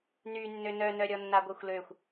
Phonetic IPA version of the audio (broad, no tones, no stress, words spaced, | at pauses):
ny nːønœnœɾʲɔ nːaɡʷœxʷløxʷ